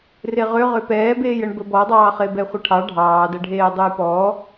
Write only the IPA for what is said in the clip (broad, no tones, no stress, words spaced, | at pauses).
reʁøʁø pɛːbeːjəɳ bəbɔdˤɑːχe bɛχʷɐʈʰɑ ɖʱɑːdɐɖʱeː dˤujpɔ